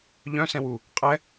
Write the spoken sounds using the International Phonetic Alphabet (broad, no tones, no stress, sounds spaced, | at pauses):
ʎ œ̃ s ɛ̃ w u | qʼ ɛ